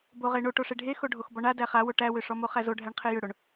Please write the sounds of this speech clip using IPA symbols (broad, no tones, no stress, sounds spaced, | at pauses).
b o ʁ e ɳ o ʈ o ʂ e ɖʱ e x o ɖʱ o x b ɔ ɳ a d æ χ a w o ʈ æ w ʏ ʂ ɔ m o χ æ z o ɖʱ æ ɳ qʰ e j ʏ ɽ o ɳ